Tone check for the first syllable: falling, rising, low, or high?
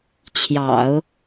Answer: low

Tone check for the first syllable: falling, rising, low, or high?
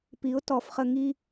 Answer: rising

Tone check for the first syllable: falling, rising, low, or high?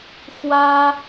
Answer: high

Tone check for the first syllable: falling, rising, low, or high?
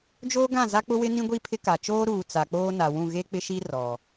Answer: high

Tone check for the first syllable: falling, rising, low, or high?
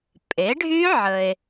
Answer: rising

